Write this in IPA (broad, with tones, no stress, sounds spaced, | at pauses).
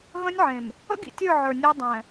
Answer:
ɣ ə̃˦ nʲ ʕ ẽ˨ m | ə̰˦ ɡ ḭ˨ tʲ ə˞˦˨ ʕ ə˞˨ nʲ ə˞˦ dˤ ɛ̃˨